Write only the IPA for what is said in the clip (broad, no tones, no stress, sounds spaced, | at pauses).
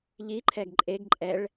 ʎ i ǃʰ ɛ ɡ ǃʼ e ɡ ǃʼ ɛ ɭ